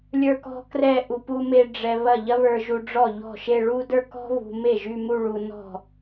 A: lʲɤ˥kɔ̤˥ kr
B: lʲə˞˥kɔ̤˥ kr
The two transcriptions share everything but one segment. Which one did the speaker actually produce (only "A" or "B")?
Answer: B